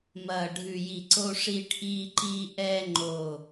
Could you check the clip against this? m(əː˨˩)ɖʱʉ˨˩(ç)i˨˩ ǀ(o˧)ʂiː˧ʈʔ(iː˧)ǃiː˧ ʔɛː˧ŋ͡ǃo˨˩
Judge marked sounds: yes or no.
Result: no, no, yes, yes

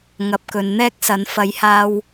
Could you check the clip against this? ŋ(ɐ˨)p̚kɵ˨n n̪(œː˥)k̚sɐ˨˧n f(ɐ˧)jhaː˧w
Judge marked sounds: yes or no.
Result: yes, no, no

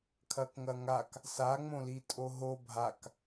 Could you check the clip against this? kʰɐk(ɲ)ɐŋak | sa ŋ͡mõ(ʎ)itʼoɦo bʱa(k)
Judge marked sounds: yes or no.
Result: no, no, yes

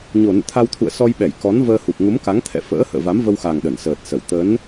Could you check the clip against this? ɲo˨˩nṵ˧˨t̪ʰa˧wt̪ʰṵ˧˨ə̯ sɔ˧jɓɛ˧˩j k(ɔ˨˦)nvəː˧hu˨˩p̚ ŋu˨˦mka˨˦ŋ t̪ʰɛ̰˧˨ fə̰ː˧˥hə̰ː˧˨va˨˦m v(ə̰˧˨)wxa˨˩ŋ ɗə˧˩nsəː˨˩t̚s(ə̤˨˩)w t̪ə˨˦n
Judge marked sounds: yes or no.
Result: yes, no, no

